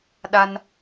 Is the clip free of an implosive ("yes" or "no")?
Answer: no